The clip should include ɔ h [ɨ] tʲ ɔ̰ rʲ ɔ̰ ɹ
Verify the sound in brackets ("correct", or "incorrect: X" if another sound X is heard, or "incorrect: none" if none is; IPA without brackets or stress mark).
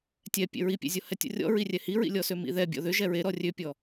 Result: incorrect: ɛ